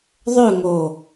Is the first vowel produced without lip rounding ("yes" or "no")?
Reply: no